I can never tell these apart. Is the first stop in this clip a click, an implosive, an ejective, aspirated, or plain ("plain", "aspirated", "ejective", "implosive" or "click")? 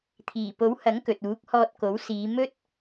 aspirated